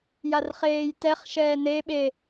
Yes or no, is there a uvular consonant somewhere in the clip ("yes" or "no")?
yes